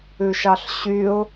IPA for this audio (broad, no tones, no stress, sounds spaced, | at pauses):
ʉ ʃ ɑ ɬ ɕ y ʊ̯